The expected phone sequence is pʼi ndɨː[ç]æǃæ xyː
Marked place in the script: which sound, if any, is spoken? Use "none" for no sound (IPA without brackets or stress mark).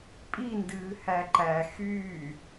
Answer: h